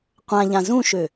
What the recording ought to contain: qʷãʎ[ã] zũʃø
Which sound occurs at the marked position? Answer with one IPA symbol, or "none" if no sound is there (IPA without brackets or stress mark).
ã